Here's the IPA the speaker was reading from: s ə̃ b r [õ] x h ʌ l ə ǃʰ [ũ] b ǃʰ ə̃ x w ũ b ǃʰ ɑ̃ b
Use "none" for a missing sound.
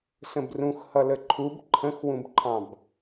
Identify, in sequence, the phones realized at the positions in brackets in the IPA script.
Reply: ũ, u

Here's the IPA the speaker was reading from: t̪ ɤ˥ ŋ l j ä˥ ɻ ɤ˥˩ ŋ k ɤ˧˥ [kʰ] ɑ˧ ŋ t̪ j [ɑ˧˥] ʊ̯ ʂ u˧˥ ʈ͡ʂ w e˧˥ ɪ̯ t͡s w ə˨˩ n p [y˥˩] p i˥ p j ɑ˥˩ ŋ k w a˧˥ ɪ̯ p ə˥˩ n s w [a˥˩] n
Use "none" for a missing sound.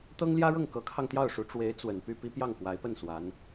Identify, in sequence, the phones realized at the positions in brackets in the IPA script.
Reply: kʰ, ɑ˥˩, y˥˩, a˧˥

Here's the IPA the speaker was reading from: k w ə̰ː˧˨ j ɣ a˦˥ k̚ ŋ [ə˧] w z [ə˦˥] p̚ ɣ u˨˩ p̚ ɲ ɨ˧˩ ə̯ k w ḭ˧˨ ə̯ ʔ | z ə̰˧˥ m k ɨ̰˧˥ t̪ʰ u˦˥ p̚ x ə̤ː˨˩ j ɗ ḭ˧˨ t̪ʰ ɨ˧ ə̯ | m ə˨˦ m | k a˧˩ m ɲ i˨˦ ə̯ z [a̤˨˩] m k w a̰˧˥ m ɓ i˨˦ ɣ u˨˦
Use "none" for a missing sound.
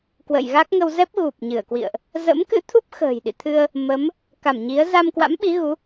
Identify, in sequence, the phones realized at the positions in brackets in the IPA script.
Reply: ə˧, ɛ˦˥, a˧

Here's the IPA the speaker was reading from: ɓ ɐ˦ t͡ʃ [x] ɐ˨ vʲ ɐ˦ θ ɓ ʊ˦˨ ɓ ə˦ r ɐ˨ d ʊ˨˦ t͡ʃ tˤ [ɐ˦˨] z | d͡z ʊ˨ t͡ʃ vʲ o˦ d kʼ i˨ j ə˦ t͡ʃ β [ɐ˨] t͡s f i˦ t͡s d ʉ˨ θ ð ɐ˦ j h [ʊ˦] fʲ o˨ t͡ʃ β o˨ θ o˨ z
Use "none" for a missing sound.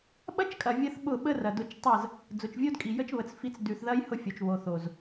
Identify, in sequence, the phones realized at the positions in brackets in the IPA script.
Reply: kʼ, ɐ˦˨, ə˨, ʊ˦

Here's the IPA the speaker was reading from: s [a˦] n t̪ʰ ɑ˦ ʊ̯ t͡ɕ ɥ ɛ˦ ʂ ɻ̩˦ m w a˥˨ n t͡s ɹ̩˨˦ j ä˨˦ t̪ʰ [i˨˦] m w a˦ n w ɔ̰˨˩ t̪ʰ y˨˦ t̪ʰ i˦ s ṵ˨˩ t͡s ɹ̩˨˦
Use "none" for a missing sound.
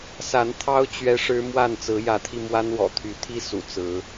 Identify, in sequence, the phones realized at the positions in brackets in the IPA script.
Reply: a˨˦, i˧

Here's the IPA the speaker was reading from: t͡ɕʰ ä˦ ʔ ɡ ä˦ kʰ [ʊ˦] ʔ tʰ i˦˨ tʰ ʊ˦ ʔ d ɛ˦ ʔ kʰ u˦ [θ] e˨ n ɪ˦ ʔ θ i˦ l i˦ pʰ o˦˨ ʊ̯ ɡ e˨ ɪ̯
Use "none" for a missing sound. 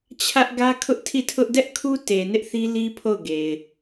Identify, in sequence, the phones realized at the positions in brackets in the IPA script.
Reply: ʊ˦, t

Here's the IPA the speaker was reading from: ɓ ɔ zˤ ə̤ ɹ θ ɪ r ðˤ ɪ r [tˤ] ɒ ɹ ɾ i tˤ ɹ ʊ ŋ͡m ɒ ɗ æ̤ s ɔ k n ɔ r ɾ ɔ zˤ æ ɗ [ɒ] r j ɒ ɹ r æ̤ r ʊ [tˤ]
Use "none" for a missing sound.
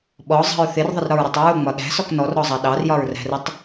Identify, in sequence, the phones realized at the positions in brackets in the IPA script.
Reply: ɾ, ɑ, tˤ

